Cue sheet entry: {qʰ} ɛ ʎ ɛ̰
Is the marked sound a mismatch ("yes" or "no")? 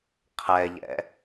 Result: no